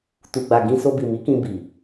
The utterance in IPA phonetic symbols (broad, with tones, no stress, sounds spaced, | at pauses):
t u˨ ɡ͡b a˨ ɡ ĩ˧ s o˧ b i˨ m i˨˦ k ĩ˧ b i˨